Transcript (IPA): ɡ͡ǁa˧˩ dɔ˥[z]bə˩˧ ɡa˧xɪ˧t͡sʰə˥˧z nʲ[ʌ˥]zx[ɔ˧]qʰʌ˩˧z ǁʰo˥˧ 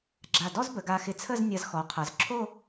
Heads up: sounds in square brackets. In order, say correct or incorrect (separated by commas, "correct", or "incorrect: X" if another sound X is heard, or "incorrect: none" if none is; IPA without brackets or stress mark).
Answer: correct, incorrect: ʌ˧, incorrect: ɔ˩˧